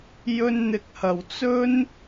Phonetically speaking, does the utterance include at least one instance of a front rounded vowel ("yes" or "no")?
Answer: no